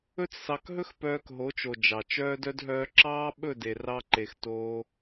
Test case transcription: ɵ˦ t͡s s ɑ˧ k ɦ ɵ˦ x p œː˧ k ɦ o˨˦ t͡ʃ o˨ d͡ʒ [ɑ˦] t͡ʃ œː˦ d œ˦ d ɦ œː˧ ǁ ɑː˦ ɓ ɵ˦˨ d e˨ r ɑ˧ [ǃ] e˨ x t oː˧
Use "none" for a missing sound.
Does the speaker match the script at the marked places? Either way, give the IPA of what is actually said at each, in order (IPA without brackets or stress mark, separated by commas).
ɑ˨, ǃ